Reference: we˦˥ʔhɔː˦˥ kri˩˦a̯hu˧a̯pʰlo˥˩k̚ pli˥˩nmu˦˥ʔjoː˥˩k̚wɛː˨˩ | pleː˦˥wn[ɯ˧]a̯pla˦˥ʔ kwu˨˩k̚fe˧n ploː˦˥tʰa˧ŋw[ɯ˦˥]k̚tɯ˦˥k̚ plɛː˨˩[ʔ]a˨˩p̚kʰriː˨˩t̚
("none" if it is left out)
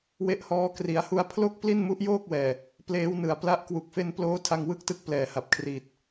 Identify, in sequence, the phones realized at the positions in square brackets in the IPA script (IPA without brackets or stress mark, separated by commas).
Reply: ɯ˨˩, ɯ˦˥, h